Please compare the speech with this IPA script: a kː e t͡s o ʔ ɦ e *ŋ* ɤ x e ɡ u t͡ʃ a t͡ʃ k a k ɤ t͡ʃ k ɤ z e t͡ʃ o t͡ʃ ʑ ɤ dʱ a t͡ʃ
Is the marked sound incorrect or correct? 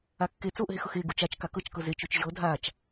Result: incorrect